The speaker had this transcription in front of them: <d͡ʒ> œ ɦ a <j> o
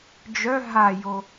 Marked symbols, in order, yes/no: yes, yes

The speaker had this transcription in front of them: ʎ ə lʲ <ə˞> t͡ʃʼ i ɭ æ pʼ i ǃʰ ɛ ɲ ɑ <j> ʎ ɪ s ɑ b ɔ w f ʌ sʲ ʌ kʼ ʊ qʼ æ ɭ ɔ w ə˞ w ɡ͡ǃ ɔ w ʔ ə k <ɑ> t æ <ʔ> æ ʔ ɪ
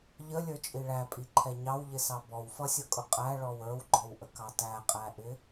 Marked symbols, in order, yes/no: yes, no, yes, no

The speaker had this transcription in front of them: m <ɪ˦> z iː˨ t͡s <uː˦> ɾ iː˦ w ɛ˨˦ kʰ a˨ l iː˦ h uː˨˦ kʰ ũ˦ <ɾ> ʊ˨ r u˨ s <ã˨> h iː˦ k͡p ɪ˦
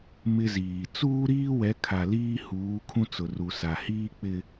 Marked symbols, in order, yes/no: yes, yes, no, no

